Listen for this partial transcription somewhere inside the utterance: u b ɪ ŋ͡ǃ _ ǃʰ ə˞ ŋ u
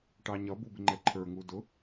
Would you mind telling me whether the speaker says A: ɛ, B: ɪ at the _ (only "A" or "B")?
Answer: A